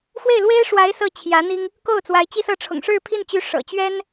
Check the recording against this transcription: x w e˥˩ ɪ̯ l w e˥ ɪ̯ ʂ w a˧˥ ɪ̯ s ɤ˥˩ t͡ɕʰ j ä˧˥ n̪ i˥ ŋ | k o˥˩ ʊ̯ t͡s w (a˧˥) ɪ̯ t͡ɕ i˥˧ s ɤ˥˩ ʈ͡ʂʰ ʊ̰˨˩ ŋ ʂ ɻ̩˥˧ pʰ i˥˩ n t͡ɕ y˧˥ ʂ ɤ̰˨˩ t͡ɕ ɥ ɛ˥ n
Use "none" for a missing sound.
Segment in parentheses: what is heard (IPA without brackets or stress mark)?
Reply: a˧˥